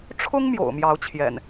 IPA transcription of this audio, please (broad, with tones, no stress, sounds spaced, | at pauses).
ʈ͡ʂʰ ʊ˦ ŋ m j o̰˨˩ ʊ̯ m j ɑ˨˦ ʊ̯ t͡ɕʰ j ɛ̰˨˩ n